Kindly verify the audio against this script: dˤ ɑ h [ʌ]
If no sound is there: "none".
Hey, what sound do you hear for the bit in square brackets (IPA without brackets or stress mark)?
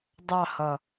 ʌ